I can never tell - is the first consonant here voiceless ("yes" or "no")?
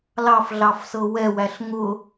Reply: no